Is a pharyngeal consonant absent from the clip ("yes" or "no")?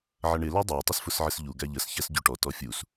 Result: no